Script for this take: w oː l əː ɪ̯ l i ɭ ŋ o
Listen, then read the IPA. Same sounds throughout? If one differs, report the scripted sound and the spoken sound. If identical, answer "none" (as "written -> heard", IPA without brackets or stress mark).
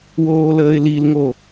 ɭ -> l